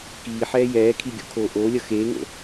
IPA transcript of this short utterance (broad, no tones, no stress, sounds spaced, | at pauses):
k iː ħ ɛː j ɛː kʰ i ɡʲ o̰ kʰ oː ʔ oː lʲ ʌ x eː ŋ o̰